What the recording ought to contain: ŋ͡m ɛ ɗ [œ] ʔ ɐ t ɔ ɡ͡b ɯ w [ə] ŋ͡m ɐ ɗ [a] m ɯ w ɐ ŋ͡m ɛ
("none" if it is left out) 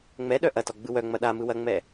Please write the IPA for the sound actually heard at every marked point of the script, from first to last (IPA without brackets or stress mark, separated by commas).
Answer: œ, œ, a